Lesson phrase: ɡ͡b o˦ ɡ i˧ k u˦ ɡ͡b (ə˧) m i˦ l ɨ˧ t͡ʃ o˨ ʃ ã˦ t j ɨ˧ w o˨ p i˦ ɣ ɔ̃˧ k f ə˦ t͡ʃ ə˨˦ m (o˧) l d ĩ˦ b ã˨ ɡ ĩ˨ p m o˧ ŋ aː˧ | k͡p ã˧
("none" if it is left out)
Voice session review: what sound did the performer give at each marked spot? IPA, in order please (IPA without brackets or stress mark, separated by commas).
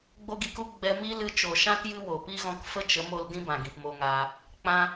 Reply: ɛ˧, o˧